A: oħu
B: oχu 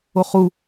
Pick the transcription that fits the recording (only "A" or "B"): B